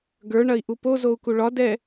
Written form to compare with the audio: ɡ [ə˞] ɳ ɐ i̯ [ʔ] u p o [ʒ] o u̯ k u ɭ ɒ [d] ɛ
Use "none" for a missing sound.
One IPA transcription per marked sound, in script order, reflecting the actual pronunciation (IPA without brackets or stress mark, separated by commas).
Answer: ə˞, ʔ, z, d